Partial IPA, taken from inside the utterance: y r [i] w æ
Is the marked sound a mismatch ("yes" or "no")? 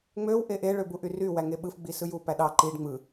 yes